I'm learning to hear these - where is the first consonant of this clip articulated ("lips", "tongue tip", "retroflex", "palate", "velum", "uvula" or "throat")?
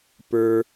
lips